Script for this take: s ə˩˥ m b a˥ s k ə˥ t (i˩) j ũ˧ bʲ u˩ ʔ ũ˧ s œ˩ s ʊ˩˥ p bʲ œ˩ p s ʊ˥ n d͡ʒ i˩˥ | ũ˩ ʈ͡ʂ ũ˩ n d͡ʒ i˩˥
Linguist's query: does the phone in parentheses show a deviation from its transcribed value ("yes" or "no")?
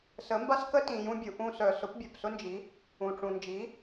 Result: yes